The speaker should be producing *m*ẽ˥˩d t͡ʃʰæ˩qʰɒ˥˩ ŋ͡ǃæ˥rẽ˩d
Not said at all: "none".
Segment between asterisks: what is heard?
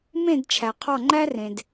m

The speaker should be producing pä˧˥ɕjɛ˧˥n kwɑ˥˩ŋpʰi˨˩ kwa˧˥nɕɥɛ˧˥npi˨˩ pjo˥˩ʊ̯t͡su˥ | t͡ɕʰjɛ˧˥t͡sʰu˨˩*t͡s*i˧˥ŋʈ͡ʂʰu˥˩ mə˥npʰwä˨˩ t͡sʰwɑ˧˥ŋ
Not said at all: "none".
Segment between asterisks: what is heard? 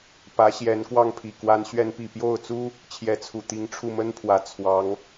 t̪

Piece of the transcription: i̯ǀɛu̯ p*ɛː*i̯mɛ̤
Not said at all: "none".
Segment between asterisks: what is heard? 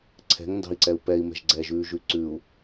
ɛ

